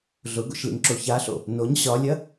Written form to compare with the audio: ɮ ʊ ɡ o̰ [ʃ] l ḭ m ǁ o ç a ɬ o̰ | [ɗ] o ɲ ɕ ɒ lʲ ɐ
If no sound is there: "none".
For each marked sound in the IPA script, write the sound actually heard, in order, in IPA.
ʃ, n

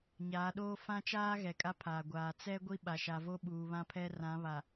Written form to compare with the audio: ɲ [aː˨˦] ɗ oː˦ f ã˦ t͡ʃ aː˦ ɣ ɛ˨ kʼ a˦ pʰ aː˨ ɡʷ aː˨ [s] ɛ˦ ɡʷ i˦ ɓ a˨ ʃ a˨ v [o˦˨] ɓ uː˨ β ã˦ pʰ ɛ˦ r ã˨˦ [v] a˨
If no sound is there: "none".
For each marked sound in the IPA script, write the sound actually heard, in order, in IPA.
aː˨˦, t͡s, o˦, β

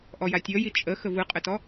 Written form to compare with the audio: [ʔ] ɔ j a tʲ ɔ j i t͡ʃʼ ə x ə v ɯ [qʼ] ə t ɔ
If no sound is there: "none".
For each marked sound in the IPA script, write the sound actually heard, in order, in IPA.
ʔ, qʼ

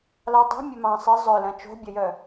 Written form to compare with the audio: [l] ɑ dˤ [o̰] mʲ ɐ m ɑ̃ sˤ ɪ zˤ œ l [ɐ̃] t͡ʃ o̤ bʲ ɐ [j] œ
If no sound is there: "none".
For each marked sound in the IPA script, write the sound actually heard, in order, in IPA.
l, o̤, ɐ̃, j

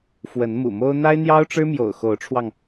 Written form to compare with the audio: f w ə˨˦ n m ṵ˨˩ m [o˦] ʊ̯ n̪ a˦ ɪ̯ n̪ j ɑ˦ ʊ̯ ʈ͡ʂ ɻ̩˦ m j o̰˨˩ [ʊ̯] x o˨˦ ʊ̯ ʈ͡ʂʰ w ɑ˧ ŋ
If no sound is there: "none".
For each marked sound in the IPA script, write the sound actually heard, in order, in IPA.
o˦, ʊ̯

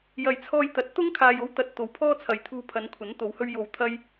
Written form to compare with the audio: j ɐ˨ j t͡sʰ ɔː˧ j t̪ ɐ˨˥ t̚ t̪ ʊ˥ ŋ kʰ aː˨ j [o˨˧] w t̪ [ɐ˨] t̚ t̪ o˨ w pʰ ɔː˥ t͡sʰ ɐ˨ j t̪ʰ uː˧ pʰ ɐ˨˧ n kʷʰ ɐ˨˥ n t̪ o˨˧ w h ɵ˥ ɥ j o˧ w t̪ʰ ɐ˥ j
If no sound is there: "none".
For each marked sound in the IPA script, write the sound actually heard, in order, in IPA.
o˧, ɐ˨

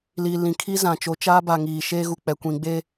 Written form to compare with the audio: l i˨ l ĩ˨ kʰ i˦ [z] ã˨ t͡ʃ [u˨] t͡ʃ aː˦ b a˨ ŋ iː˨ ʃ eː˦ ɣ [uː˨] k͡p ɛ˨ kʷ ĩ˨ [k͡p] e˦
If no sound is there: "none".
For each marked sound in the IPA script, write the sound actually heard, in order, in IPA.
z, o˨, u˨, ɡ͡b

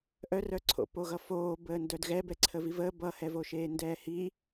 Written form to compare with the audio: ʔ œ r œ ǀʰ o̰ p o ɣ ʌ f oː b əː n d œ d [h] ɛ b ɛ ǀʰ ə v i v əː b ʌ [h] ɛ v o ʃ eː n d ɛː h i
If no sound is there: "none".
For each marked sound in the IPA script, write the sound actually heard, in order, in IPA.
ɣ, h

